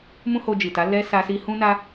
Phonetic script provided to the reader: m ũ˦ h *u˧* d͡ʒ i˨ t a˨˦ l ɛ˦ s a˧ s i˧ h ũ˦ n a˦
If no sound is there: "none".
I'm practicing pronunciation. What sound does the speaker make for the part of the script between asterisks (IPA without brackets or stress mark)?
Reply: o˧